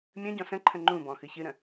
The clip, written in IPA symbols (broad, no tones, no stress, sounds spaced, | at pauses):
mʲ ə̃ ɟ ɔ̃ s ə̃ ǃʰ ə̃ ŋ͡ǃ ũ b ɔ̃ x ɨ ç ɨ ɾ ə̃